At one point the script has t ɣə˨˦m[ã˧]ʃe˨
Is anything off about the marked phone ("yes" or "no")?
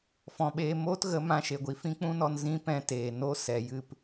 no